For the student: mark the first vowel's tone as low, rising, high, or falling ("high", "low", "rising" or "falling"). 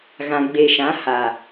low